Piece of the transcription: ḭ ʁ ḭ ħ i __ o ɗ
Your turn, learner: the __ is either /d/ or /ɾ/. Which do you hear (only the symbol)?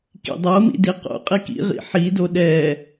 d